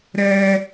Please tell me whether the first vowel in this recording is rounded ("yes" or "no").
no